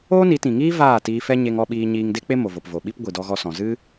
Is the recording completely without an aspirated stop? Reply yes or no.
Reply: yes